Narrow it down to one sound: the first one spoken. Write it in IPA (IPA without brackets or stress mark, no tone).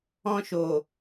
ɔ̃